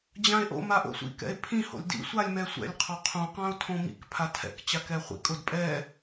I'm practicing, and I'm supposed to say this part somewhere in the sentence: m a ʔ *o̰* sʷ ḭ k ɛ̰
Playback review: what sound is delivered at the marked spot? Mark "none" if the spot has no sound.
o̰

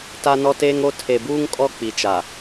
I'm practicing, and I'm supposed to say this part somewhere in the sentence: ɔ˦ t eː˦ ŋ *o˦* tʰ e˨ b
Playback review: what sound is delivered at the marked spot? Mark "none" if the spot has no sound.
o˦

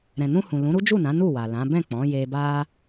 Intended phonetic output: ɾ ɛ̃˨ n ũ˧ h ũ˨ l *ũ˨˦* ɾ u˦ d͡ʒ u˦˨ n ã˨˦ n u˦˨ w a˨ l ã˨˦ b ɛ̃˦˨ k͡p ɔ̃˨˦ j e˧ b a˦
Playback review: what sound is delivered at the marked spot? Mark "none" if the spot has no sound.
ũ˨˦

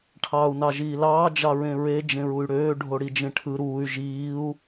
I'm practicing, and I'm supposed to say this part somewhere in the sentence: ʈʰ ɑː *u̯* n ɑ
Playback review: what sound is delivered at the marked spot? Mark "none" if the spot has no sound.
u̯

